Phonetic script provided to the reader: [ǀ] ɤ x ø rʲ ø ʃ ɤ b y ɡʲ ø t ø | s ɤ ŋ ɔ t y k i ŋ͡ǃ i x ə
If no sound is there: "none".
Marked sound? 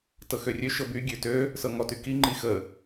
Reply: t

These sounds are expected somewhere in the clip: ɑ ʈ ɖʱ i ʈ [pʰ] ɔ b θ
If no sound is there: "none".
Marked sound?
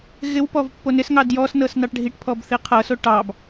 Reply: pʰ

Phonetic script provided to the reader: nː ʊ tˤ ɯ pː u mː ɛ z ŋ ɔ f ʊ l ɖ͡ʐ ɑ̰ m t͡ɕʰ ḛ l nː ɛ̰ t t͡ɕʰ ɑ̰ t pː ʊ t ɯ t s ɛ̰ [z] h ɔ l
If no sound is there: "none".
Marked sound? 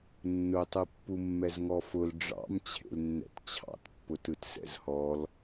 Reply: z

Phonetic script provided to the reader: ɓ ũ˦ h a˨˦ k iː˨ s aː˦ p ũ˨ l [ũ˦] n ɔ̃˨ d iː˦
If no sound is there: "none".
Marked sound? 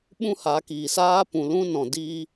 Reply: ũ˦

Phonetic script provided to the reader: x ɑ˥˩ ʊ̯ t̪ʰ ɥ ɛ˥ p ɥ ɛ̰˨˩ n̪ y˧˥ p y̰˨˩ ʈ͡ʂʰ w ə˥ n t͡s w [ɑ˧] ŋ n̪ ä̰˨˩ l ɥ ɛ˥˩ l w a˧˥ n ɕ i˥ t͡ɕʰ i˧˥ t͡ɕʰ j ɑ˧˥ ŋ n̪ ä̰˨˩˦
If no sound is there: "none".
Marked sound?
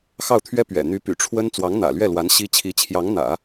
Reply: ɑ˧˥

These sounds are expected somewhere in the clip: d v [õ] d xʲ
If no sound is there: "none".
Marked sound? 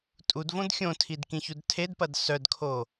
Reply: õ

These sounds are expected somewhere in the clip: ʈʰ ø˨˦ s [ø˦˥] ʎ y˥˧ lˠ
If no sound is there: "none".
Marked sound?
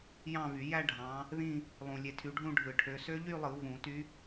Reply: ø˦˥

